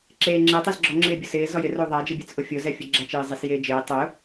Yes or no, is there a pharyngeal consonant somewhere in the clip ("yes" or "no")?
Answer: no